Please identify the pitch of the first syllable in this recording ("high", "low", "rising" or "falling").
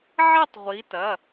falling